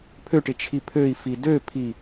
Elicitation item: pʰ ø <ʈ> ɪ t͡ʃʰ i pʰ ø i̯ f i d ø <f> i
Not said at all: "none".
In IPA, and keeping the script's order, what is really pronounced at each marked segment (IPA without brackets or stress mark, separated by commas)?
ʈ, pʰ